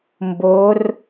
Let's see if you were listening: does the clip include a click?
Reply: no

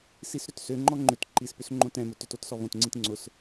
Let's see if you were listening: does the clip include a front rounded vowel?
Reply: yes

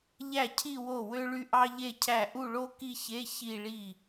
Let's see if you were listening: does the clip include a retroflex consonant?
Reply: yes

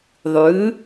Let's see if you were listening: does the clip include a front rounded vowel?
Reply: no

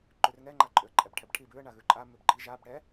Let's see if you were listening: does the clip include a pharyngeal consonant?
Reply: no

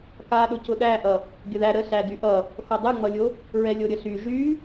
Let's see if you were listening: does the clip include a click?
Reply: no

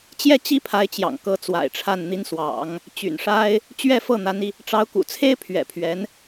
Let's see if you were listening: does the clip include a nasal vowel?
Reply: no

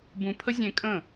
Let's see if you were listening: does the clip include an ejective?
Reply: yes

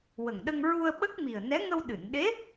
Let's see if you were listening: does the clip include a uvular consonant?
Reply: no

